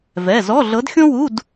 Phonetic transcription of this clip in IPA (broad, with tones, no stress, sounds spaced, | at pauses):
v ɛ˩˧˩ z ɔ˧˥˧ ɮ ɤ˨˦ d xʲ õ˥ w u˧˥˧ d